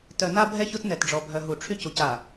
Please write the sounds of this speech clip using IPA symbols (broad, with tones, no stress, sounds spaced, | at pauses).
t œ˨ n a˦ bʱ ɛ˦ ç o˦ t n ɛ˨ t ɖ͡ʐ ɔ˨ bʱ œ˨ ɦ u˨ ʈ͡ʂʰ y˦ c u˨ c a˨